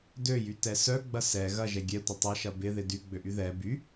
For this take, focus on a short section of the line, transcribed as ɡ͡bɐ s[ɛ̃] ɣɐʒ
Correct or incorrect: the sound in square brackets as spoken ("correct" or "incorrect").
incorrect